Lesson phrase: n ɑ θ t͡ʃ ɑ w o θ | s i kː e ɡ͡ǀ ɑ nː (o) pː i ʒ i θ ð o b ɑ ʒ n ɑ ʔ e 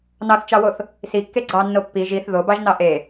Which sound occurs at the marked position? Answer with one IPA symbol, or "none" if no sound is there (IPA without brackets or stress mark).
o